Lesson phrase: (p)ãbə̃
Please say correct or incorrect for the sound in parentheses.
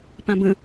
correct